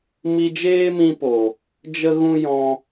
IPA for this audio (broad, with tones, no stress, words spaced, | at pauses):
mi˧d͡ʒeː˦mĩ˧po˨ | d͡ʒə˦ɣũ˦ jɔ̃˧